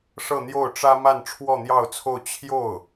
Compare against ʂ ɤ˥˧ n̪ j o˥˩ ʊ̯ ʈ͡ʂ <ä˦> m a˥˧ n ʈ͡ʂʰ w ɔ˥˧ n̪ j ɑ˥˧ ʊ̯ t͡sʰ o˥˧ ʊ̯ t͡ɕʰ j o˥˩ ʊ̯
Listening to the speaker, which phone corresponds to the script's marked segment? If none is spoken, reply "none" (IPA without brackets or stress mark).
ä˥